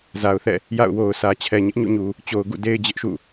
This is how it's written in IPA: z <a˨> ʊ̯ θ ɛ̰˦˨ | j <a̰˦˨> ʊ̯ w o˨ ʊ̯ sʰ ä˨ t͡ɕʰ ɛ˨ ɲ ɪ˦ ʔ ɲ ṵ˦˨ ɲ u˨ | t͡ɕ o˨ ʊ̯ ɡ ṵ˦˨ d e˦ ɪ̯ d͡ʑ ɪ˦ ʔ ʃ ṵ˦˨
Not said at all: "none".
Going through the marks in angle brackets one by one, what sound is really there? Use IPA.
a˨, a̰˦˨

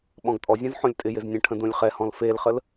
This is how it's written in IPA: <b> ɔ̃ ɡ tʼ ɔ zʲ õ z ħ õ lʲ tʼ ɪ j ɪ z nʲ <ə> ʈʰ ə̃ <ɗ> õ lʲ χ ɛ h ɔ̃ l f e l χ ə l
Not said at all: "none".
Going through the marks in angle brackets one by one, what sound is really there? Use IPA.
ɓ, ə̃, d

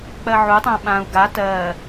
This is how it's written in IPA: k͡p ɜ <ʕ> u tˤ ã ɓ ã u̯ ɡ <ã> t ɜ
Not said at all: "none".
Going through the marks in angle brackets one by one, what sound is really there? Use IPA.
ʕ, a

